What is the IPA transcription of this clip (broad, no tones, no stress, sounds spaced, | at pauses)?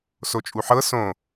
s o t͡ʃʼ u ħ ɤ s õ